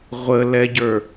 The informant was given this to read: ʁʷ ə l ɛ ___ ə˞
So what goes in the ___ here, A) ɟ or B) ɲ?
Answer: A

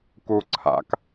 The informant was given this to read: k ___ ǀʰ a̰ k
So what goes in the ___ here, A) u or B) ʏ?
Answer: A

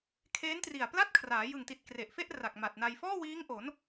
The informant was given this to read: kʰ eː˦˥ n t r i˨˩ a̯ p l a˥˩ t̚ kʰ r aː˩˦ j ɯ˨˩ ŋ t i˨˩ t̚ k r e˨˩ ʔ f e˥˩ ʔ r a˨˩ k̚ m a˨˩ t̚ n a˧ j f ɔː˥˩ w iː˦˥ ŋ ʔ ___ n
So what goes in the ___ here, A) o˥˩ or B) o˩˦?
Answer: B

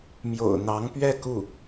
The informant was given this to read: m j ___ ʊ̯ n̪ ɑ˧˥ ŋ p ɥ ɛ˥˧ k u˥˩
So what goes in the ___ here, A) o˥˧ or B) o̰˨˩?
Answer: B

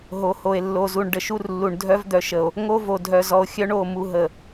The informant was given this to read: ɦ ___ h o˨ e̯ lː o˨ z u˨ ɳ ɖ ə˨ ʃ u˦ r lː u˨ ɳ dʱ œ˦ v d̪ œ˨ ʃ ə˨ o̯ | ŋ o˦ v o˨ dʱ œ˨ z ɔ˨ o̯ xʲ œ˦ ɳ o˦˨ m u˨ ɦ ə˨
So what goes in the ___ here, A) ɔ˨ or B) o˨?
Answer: B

